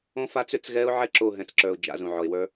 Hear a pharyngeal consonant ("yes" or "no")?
yes